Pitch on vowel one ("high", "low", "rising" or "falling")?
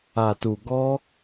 low